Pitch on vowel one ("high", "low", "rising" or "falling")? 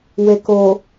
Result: low